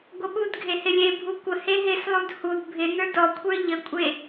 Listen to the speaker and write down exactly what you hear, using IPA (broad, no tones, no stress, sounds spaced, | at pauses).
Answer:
ɡʷ ə ɓ u d ɡʱ e h ɪ lʲ e bʱ u kʷ ə h e ɦ ɪ s lˠ u d h u d bʱ ɪ n ə˞ d ɔ kʷʰ ə˞ ʎ ə kʷʼ e